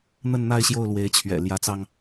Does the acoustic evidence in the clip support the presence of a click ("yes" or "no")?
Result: no